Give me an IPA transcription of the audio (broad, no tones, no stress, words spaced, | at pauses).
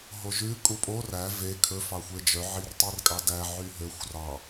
ɦoʒʉ kʼupʼo ræ ve kʰɵ fɑxʷed͡ʒœ ʕirtˤirkʼɑdæ ʕyɦøxʷ rɑ